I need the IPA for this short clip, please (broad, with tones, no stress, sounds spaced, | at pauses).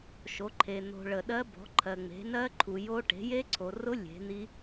ʃ o˨˦ ǃʰ e˨ n̪ o̤˨ ɭ ə˨ ɗ ɜ˦˥ b ɔ̤˨˦ ǃʰ ɜ˨ ŋ͡m e̤˨˦ n ɜ˦˥ ǃʰ u˨ j o˦˥ ʈ e̤˨˦ j e˦˥ ǀʰ o˨ r ʊ˦˥ lʲ e̤˨˦ n̪ i˦˥